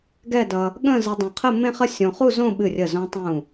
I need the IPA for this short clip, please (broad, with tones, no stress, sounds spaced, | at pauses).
ɡ ɛ˥˧ d ʌ˧ | ɠ ə̃˥˧ z ə˧ dˤ ə̃˧˩ qʰ ə˥˧ m ẽ˥˧ χ ə˥˧ sʲ õ˧ χ u˥˧ z õ˥˧ ɓ ɨ˧˩ rʲ ə˧˩ z õ˧ tˤ ũ˧˩